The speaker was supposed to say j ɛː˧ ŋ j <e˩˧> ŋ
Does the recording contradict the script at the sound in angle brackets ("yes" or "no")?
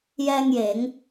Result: yes